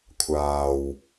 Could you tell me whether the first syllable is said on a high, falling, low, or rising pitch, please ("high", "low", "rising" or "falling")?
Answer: low